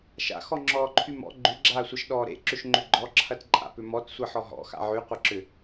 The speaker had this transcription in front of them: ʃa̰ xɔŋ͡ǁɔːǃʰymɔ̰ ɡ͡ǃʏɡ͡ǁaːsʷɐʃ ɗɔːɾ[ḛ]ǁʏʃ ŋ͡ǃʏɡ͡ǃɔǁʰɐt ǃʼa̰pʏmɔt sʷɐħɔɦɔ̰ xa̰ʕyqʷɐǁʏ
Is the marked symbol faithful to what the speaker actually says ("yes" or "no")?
yes